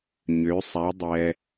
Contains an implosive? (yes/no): no